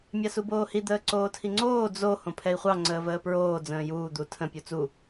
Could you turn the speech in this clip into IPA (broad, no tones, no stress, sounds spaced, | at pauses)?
mʲ a s u b oː h i d̪ əː ǀ oː tʰ i ŋ͡ǀ oː d͡z o h õ pʰ ɛ i̯ χʷ ɑ ŋ͡ǀ əː v əː p ɹ oː d͡z ə̃ː j uː d̪ u tʰ ə̃ pʲ u t͡s u